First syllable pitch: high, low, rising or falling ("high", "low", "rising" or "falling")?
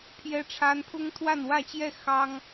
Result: high